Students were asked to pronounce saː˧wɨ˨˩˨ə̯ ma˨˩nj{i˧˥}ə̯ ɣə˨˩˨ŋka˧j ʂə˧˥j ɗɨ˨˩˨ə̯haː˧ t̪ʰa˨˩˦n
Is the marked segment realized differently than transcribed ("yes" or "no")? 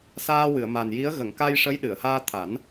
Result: no